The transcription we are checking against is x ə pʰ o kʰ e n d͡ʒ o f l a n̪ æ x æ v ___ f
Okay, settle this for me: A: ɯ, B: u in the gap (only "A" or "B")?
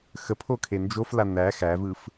A